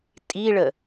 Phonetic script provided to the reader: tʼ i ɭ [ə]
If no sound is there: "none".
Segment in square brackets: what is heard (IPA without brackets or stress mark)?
ə